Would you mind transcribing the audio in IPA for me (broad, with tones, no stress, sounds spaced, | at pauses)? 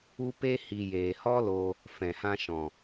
u˦ p e˦ h i˨ j eː˨ h ɔ˦ l o˧ | f ɛ̃˨ h ã˧ ʃ ɔ̃˨